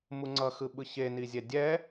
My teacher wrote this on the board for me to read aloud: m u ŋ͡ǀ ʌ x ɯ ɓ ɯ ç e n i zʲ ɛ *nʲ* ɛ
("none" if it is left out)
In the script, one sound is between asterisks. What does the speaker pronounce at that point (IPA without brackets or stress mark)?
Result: dʲ